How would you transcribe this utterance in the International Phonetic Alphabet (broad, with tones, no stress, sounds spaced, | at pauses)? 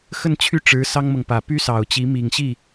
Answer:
x ə˥˧ n t͡ɕʰ y˥˩ ʈ͡ʂ ɻ̩˧˥ s ɑ˥ ŋ m ɤ˨ ŋ p ä˨˩ p y˥ s ɑ˨˩ ʊ̯ t͡ɕ i˧˥ m i˨˩ ŋ ɕ i˥˩